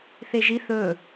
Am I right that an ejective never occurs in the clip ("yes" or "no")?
yes